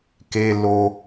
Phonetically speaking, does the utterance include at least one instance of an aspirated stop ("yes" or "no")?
no